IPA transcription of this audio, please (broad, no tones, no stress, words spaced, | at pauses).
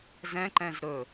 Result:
zɛ̃ǃɛ̃z ɾɵ